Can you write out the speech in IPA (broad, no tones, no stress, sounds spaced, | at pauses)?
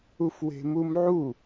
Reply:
u f w e̤ m u m ʕ u